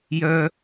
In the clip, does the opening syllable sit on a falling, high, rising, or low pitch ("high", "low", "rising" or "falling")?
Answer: low